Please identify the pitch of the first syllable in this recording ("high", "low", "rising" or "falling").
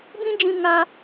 high